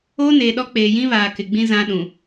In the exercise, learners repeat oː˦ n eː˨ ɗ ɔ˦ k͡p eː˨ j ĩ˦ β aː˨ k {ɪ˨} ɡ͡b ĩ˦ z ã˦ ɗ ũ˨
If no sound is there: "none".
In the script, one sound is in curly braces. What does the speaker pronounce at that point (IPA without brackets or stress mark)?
ɪ˨